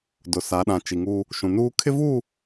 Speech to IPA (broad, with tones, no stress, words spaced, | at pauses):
dʊ˨sa˨˦ɗã˨ t͡ʃi˨ŋuː˦ | ʃũ˨nuː˦ kʰɪ˦vuː˦˨